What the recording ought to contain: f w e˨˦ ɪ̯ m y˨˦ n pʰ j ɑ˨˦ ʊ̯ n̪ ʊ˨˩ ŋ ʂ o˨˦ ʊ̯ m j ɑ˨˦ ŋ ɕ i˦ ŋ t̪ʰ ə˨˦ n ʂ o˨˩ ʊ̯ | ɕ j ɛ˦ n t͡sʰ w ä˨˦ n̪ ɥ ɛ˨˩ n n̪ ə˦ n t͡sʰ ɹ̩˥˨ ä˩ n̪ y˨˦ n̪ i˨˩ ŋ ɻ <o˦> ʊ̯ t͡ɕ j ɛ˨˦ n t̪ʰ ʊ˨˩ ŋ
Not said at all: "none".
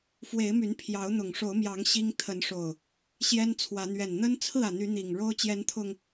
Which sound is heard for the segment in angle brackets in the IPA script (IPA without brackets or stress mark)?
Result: o˦